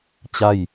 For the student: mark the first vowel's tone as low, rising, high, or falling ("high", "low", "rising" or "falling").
falling